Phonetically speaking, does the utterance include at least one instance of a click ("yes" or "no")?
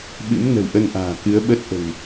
no